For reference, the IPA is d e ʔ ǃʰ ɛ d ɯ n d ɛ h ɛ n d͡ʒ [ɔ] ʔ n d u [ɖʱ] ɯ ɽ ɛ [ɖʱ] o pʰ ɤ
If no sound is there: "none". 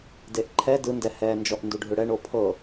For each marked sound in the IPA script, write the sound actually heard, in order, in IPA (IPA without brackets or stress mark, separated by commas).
ɔ, ɖʱ, ɳ